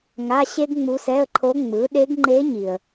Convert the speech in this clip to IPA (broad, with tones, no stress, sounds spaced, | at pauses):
ŋ a˧˥˧ ɕ e˥ ɡ ŋ͡m u˧˥ s ɛ˧˥˧ ə̯ ǃʰ o˧˥ ŋ͡m ɯ˩˥ ɗ e˧˥ ɡ ŋ͡ǃ e˧˥ ɲ i˨ ə̯